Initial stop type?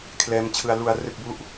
aspirated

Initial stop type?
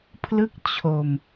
aspirated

